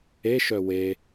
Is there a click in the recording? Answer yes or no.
no